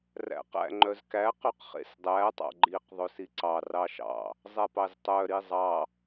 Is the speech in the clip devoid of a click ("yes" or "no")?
no